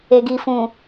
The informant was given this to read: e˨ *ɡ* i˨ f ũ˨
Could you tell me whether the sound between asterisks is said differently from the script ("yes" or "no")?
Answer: no